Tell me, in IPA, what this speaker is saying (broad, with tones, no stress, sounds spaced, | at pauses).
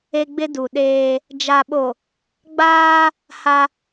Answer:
e˦ ɡ͡b ɪ˦ d u˨ ɗ eː˦ | d͡ʒ a˨ ɓ o˨ | ɡ͡b aː˦ | h a˦